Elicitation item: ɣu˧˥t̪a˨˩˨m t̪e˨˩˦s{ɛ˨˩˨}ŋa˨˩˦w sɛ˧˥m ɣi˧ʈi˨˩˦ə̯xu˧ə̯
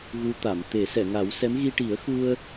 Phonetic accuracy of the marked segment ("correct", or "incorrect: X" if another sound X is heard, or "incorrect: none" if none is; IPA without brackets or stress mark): correct